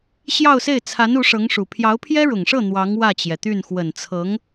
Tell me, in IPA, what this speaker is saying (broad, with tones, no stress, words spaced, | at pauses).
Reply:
ɕjɑ˥˧ʊ̯se˥˩ɪ̯ t͡sʰa˧˥n u˧˥ʂɤ˧˥ŋʂu˨˩ pʰjɑ˧˥ʊ̯pʰjɛ˥ɻʊ˨˩ŋʂɤ˥˩ n̪wɑ˧˥ŋ wä˥˩t͡ɕjɛ˩t̪y˥˩n xwə˨˩nt͡sʰɤ˧˥ŋ